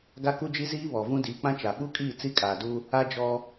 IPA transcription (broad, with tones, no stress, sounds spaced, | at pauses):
ɡ a˦ k u˦ d͡ʒ i˦ z iː˦ β ɔ˨ v ũ˦ d iː˨ k͡p ã˦ t͡ʃ a˨ ɓ u˦ kʼ iː˦˨ t͡s i˦ kʼ aː˨ d u˦ | a˦ d͡ʒ ɔ˦